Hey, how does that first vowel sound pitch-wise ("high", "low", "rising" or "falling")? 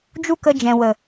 high